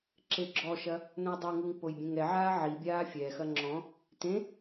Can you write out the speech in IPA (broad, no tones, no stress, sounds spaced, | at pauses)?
ǁ e ɡ͡ǁ ɔ ʃ ɐ | n õ j dˤ ɨ ŋ u ŋ p o j bʲ ẽ ŋ ɛ ʕ aː ʕ i bʲ aː fʲ ɛ x ɐ ŋ͡ǁ ɔ̃ | t ẽ